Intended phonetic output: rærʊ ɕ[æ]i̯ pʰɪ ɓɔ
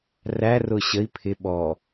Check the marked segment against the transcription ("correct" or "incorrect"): incorrect